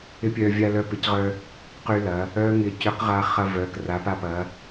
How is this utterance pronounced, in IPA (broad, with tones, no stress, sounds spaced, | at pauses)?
ɪ˦˥ pʲ œ˧ vʲ a˧ l œ˨˥ p ɪ˩˧ c ʁ œ˧ | q y˧ l ɐ˩˧ | œ˦˥ ŋ ɪ˧ c ʏ˨˥ q ʁ a˧ χ ɐ˧ v œ˩˧ k r a˩˧ p a˧ p ɐ˩˧